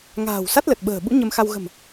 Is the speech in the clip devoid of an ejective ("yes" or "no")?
yes